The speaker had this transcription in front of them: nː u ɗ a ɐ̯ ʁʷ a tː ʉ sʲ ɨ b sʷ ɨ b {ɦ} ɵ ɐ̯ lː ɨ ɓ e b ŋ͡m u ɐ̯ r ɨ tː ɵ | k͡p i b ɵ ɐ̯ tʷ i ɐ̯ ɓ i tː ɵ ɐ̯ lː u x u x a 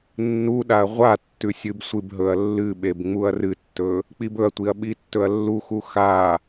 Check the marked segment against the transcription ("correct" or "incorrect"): correct